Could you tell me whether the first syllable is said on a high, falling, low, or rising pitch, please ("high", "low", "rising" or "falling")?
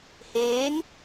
rising